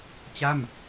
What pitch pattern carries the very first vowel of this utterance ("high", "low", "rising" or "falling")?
falling